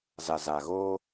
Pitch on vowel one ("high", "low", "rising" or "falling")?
low